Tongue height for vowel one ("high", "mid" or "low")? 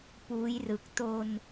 high